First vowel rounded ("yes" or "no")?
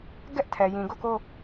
no